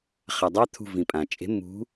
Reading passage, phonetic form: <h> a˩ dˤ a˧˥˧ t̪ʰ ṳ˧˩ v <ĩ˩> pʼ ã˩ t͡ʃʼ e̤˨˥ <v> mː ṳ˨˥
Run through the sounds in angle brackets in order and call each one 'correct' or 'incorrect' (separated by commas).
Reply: incorrect, correct, incorrect